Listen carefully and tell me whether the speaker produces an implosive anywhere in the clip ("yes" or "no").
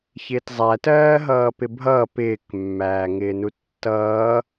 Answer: no